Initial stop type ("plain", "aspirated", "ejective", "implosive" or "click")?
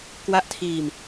plain